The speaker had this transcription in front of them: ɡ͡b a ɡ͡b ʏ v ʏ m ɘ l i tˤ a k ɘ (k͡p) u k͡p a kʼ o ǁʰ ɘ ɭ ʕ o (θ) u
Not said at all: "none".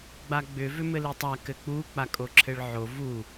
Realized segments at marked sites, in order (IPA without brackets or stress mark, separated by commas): k͡p, v